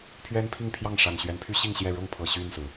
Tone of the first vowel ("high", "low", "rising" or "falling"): high